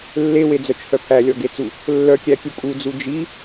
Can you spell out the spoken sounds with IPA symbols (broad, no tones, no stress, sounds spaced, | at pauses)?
lː e w e d͡z œ t͡ʃ h œ pʰ æ lʲ ɔ ɡ e t͡s u | lː œ kʲ æ kʲ u kʼ u d͡z u d͡ʒ i